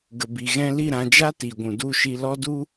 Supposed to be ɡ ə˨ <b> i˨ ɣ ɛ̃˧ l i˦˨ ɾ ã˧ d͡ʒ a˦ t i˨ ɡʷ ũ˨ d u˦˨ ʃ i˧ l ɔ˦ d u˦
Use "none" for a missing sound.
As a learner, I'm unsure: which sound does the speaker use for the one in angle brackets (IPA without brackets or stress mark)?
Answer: b